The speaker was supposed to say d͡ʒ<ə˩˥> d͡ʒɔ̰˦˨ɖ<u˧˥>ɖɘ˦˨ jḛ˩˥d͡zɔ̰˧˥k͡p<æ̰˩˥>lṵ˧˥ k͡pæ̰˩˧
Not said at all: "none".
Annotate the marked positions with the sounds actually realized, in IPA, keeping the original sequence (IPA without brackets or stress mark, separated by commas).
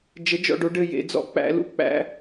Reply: ə˩˥, o˧˥, æ̰˩˥